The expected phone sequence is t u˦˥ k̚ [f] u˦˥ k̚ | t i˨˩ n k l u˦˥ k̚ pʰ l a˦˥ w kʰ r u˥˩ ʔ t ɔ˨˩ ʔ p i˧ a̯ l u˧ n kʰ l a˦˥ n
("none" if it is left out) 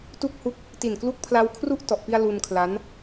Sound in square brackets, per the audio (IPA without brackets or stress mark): h